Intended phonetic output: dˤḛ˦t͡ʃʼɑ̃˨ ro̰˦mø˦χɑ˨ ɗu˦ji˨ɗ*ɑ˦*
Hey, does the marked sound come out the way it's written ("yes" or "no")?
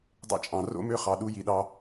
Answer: yes